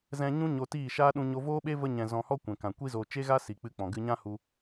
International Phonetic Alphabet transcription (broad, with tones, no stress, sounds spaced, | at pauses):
z ɛ̃˧ ɲ ũ˦ ɲ o˧ t iː˦˨ ʃ aː˦ ɗ ũ˧ ɲ o˧ v oː˦ ɓ e˦ v ə˧ ɲ ɛ̃˨ z ɔ̃˧ h ɔ˦ kʷ ɛ̃˨ k ã˨ kʷ i˦ z oː˧ t͡ʃ e˦ ɣ a˦ s i˨ k͡p ɨ˧ k͡p ɔ̃˨ ɡ ɨ˧ ɲ ã˦ h u˧